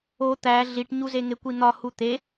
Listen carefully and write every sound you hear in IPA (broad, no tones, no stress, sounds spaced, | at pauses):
o t̪ æ ɮ i ʈ ɲ u z e ŋ e kʷ i n̪ ɒ h u t̪ e